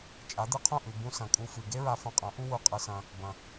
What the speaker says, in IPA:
t͡ʃʼ a˨˦ d̪ ɨ˧ qʰ ũ˦˨ ʔ ʉ˨ b ũ˧ s ɐ̃˨ kʼ u˧ f ɨ˨ ɡ e˦ ɹ a˧ f ɐ̃˧ qʼ ɐ̃˨˦ ʔ u˦ w u˧ qʼ ɨ˧ s ɐ̃˧ | b ɐ̃˨

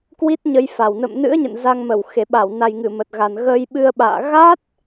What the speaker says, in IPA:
k w i˦˥ t̚ ɲ ə˧ j f a˨˩ w n ə̰˧˨ m n ɨ̰˧˥ ə̯ ɲ ə̰˧˨ n z a˧ ŋ m ə˧˩ w x e˨˩ ɓ a˧˩ w n a˨˩ j ŋ ɨ˧˩ m ə˨˩ t̚ ɣ a˨˩ n ɣ ə˧ j ɓ ɨ˧ ə̯ ɓ a̰ː˧˨ ɣ a˦˥ t̚

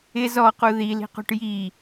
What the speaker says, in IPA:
ɪ z ɔ q u ð i l i̤ q ṳ ʈ j i

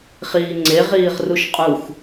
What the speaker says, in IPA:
χ iː ŋ͡ǀ e ʁ iː ʁ r u ʃ qʼ u x

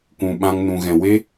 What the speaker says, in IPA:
kʷ ũ˧ ɓ ã˦ ŋ n ũ˧ ɣ ɛ̃˧ w e˦

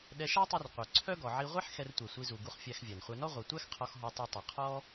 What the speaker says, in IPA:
ɗ ɛ˧ ʃ æ˥ tˤ u˧ r qʷ œ˩ ǀʰ œ˥ ɡ ɔ˩ ʕ i˧ ʁʷ ɛ˥ ħ x ɛ˧ r tʷ ɛ˩ sʷ i˧ z u˩ ɡ u˧ χ fʲ æ˧ x vʲ æ˩ n χʷ ɛ˧ n ɔ˥ ʁʷ œ˩ tʷ æ˥ x qʰ ɔ˧ x ɦ ɔ˧ tˤ u˧ tˤ ɛ˩ qʰ ɔ˥

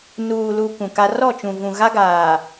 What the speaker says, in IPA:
n uː˨ l u˨ k ũ˨ k a˦ r ɔ˦˨ t͡ʃ ũ˨ v ũ˨ ɣ a˦ ɡ aː˨

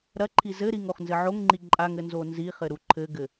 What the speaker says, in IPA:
ɾ ɐ ǃʰ i z ɘ ɾ i ŋ o χ n z ɘ ʕ o ŋ ŋ͡ǃ i ǃʼ a ŋ ɘ n z o n z i χ ɘ ɾ u ǃʰ ɘ ɡ ɘ

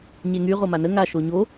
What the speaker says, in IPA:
ɲ e ŋ y ʁ o m a n ə ŋ a ʃ o ɲ o

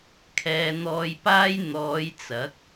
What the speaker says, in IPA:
kʰ ɛː˨ n̪ ɔː˨ j p aː˧ j n̪ ɔː˨˧ j t͡s ɐ˨˥ k̚

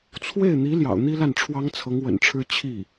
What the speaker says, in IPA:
t͡sʰ w e˥˩ ɪ̯ n̪ i˧˥ l j ɑ̰˨˩ ʊ̯ n̪ i˥ l a˥˩ n ʈ͡ʂʰ w ɑ˥ ŋ t͡sʰ ɤ˧˥ ŋ w ə̰˨˩ n ʈ͡ʂʰ ɻ̩˥ t͡ɕʰ i˥˩

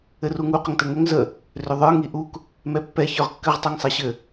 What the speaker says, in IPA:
ɘ r u ŋ u q ə ŋ t ɘ ŋ ʏ ŋ z ə | r ʏ ðˤ ə˞ ŋ i ʔ u k | m ɛ pː ɛ ç ə˞ ʁ kː ɘ ʁ tˤ u ŋ sˤ ɛ ɕ ɘ

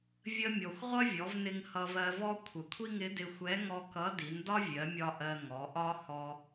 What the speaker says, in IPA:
vʲ ə˧ mʲ ɔ˩ xʷ ʁʷ ʌ˥ vʲ ɔ˩˧ v n ɪ˧ ŋ h ʌ˧ v ɜ˧ v ɔ˥ kʷʰ ə˩ kʷʰ i˥ ŋ ɪ˧˥ d ɪ˧ xʷ ɛ˧˥ ŋ ɔ˧ k ʌ˧˥ d i˩˧ n d ɒ˥ vʲ ɜ˩˧ mʲ ɒ˧ ʔ ɜ˧ ŋ ɔ˩˧ ʔ ɒ˥ h ɔ˧

